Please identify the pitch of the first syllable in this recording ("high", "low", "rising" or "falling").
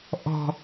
low